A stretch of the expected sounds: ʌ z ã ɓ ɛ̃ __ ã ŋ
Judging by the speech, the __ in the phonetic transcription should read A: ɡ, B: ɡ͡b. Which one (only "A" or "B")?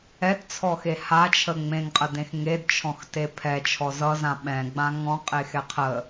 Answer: B